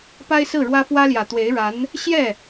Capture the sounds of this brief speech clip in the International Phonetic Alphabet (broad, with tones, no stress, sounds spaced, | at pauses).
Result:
p a˥ ɪ̯ s ɹ̩˥˩ ɻ w ä˥ f w ä˥ l j ä˨˩ t̪ w e˧˥ ɪ̯ ɻ a˧˥ n | ɕ j ɛ˥˩